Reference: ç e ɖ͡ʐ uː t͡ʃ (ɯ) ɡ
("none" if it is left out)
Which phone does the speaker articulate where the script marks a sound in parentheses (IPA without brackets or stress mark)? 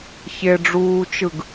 ɯ